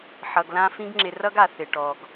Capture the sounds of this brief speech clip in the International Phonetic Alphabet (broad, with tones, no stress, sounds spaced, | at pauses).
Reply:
ħ ʌ˨ ɡ l ã˧ f ĩ˦ ɡ ŋ͡ǁ ɪ˧ r ʌ˦ ɡ a˨ θ ɪ˨ ʈ ɔ˨ ɡ